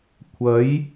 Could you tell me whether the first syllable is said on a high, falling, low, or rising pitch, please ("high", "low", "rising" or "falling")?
rising